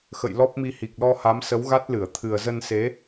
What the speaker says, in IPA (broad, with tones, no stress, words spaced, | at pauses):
xə̰˧˨jlɔ˦˥p̚mi˧ hi˨˩k̚lɔ˧ha˨˦m sə˨˦wɣa˦˥t̚lɨ˧˩ə̯ t̪ʰɨ˨˩ə̯zə˧nse˨˦